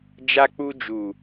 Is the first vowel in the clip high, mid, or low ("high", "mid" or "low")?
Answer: low